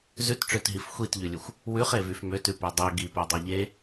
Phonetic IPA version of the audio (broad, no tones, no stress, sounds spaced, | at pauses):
z ʉ t ʈ͡ʂ ø t ɦ i f xʷ i t ʎ ʉ lʲ ʉ xʷ | w ʉ χ e v y f m ø t ʉ p ø dˤ ø ɡ i p œ dˤ e ʎ e